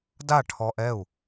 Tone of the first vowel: falling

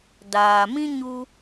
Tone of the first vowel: low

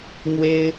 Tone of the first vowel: high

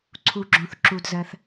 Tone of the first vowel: low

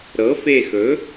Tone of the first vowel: rising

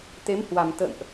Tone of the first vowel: rising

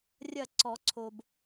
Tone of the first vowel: falling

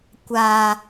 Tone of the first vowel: high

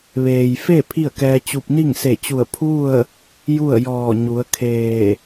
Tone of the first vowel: low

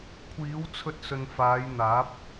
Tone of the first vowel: rising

